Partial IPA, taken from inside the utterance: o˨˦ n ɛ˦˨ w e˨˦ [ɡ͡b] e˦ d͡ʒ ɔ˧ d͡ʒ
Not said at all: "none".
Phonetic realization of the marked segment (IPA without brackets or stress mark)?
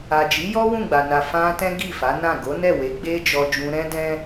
ɡ͡b